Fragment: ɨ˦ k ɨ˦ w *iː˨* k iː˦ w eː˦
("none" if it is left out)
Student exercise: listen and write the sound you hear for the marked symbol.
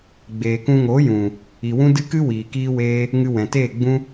iː˨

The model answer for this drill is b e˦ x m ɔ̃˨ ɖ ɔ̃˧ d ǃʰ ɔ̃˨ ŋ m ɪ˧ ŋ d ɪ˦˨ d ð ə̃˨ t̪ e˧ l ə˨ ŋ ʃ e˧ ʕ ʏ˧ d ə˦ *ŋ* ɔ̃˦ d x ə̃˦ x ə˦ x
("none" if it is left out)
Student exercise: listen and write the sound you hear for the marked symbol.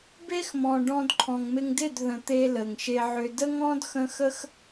ŋ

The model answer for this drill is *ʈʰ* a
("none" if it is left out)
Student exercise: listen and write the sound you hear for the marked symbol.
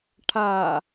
ʈʰ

